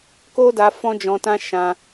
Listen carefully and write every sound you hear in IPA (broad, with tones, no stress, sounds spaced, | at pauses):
k o˦ d a˧ f ɔ̃˦ d͡ʒ ɔ̃˧ t ã˦ ʃ ã˧